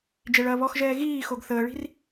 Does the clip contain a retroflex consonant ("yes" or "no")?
yes